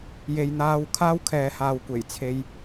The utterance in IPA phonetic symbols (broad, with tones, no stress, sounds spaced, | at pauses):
j e˨ j n̪ aː˧ w kʰ aː˥ w kʰ ɛː˨˧ h aː˨ w kʷ e˨˩ j t͡sʰ e˧ j